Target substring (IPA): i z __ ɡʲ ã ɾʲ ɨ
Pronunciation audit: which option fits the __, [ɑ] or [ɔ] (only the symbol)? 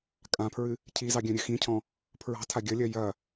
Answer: ɑ